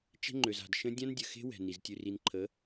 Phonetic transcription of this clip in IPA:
t͡ʃɛ̤˦ŋ͡ǃø˨z a̤˨dʃə̃˦ dʲã˦ndʲə˨xe̤˦ wɛ̤˨ni˨z tʲʉ˨ri˨nǃʰə˨˦

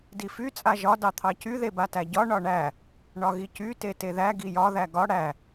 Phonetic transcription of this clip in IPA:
dify t͡sʼaʒɒ dɑt̪ʰɑcy ðebatæɟɒ ɳɒɳæ | ɳɒɣicy teteðæ ɡijɒ ðæɡɒ ɽæ

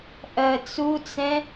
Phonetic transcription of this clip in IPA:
ʔɜt͡sut͡sɛ̃

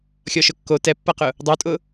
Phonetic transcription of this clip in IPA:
xʲɔʃʊkːo tɛpːaqʊ | dˤotʼʊ

